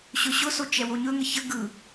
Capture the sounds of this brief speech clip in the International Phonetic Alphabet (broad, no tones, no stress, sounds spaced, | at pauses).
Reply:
ɕ ɵ ɕ ʊ s o t͡ʃ ɛ w o ɲ ɵ ŋ ə ç ə ɡ ɯ